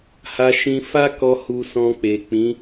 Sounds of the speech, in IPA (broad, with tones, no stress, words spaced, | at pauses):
ha˧ʃĩ˧ fa˦kɔ˧ hu˧sɔ̃˧k͡pe˨ k͡pĩ˨˦